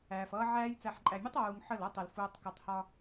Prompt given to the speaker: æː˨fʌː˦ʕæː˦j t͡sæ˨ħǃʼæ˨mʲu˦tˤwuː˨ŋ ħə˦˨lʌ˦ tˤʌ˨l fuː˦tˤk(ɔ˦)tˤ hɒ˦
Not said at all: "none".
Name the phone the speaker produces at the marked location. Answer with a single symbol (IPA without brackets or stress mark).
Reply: ʌ˦